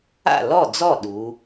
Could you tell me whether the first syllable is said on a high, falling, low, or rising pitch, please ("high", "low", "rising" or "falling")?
falling